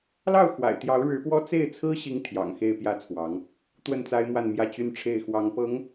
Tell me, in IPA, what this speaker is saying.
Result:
lɑ˥˩ʊ̯xwa̰˨˩ɪ̯t̪jɑ˧˥ʊ̯ ɻɻ̩˧˥pwɔ˥ t͡se˥˩ɪ̯ t͡sʰɹ̩˥ ɕi˥ŋt̪ʰjɑ̰˨˩ŋ xe˥˧ɪ̯pjä˥˩t͡sʰwɑ˧˥ŋ | t̪wə˥˩nt͡sa˥ɪ̯mwa˥˧nmjä˥˩ t͡ɕy˥nʈ͡ʂʰe˥˩ɪ̯ xwɑ˧˥ŋpɤ˧˥ŋ

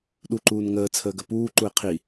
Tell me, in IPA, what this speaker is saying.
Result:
ɗu ǃuːnŋəː t͡sʰəːɡəpuː ǃuɪ̯qʰi

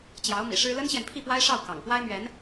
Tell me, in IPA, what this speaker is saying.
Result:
t͡ɕjɑ˧˥ʊ̯mḭ˨˩ʂɻ̩˥ lə˥nɕjɛ˨npʰi˥˩pwa˥ɪ̯ ʂɑ˥˩ʊ̯ kɑ̰˨˩ŋ pwa˥ɪ̯mɥɛ˧˥n

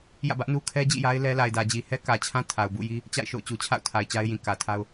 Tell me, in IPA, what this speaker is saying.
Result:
jä̰˦˨bä˦ʔnu˦ kʰɛ˦d͡ʑḭ˦˨ja˦ɪ̯ lɛ˦ la˨ɪ̯dä˨d͡ʑi˨hɛ˦ kä˨t͡ɕʰã˦ tʰa˨ʊ̯bṵ˦˨ji˦ | t͡ɕa̰˦˨ɪ̯ʃo̰˦˨ʊ̯ t͡ɕu˨t͡ɕʰa̰˦˨ʊ̯tʰa˨ɪ̯ t͡ɕa˦ɪ̯jĩ˨ kä˨tʰa˦ʊ̯

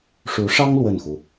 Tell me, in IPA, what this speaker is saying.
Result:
ʂu˧˥ʂɑ˥ŋ lwə˥˩nxu˩

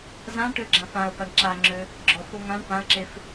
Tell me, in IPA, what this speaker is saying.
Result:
zãʈøɡ͡ǁãf ãə̯paɳ ǁaŋ͡ǁø | ɡ͡ǁɔf oŋãɳ pãə̯ǁef

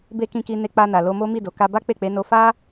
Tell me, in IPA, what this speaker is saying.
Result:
be˧ kĩ˧ki˧ne˧ k͡pa˧na˨lo˧mo˦ mi˦˨ do˨˦ ka˧ba˦ k͡pe˦˨k͡pe˨˦no˧ fa˦

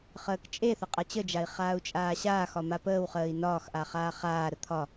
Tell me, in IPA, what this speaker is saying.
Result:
χəːkt͡ʃʼeθə qʼat͡ɕəd͡ʒai̯ χaːu̯t͡ʃʼaːɕaːxɒ mapəːwχəːi̯ nɒːxʔa χaːχaːɾə t̪ʰɒ

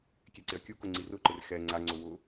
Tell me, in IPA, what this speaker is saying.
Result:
kʲeǀɪɐ̯kʲukʊ ŋ͡ǀirʊǃɪr xɛ ŋ͡ǀaŋ͡ǀʊ wʊ

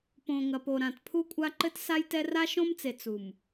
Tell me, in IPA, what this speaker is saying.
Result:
põ˨ŋɐ˨po˨ɾã˨t pʰu˦kʷʼa˦ ǃɘ˦tsa˦jtɛ˦ ra˦ʃõ˦mt͡se˨ t͡su˨m

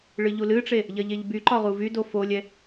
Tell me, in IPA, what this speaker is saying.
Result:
ɭɨʎulɨʈ͡ʂe | ʎɐʎeʎbyǃɒ ʁuvydo folʲɛ

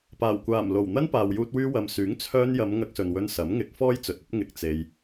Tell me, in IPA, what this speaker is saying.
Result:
paː˨˩wkʷaː˨˩mlo˨˩w n̪ɐ˥npaː˨wjuː˧t̚ wyː˧wɐ˨msyː˨˥ŋ t͡sʰœː˧njɐ˨˧m ŋɐ˧k̚sɵ˨nwɵ˧n sɐ˨˥m ŋɪ˨˥k̚fɔː˥jt͡sɵ˨t̚ɵ˥t̚ ŋɪ˧k̚t͡se˧j

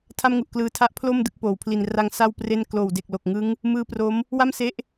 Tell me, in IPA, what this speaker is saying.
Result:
tʰa˥˩mŋu˨˩ʔklɯː˧tʰa˥˩ʔ pʰlo˥˩m dɯ˦˥k̚poː˨˩w pʰli˨˩nra˧ŋ sa˥˩wpre˥˩n kloː˨˩wde˨˩k̚lo˨˩k̚ŋɯ˦˥ŋ | mɯː˦˥pro˦˥m | wa˥˩mse˦˥ʔ

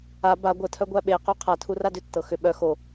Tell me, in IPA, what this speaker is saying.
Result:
a ba ɡʷətʰœɡʷæ ɓequ qʰatʰura dʏtːɤ xʏ ɓœ xo

